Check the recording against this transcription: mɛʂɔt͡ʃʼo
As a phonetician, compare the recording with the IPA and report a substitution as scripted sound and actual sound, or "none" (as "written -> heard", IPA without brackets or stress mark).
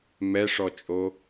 none